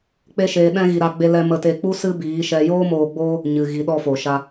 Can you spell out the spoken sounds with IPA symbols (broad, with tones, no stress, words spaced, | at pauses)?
k͡pe˦ʃeː˧ɗɛ̃˦ɣi˧ ɾa˧ɡ͡be˧lɛ˧ mə˧te˧k͡pu˦ sɨ˦biː˨˦ʃɛ˧ joː˦moː˧ɡ͡boː˦ | ɲɨ˨ ɣi˨˦ɗɔ˧fo˨ʃa˧